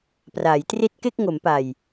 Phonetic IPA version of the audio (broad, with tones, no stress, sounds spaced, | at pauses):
p r aː˩˦ j t r i˥˩ t̚ k e˥˩ k̚ ŋ o˩˦ m p a˨˩ j